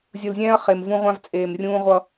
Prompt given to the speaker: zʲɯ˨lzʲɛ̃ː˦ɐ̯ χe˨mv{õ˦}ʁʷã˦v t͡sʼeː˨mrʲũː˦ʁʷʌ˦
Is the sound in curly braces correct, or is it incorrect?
incorrect